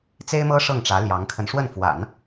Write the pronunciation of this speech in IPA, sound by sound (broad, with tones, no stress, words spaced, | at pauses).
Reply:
t͡se˥ɪ̯mɤ˥ ʂɤ˥˩ŋʈ͡ʂä˧˥ ljɑ˧˥ŋkʰə˧n ʂwə˥˩nfwa̰˨˩˦n